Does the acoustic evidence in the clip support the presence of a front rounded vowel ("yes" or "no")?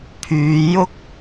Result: yes